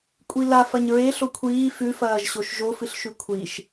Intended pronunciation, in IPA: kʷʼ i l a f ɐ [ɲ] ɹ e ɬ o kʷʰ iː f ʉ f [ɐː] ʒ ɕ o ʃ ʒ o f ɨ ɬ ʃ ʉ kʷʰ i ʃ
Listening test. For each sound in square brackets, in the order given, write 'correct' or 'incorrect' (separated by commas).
correct, correct